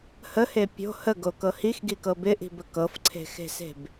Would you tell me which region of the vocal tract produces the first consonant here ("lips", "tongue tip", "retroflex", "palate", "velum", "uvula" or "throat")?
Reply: throat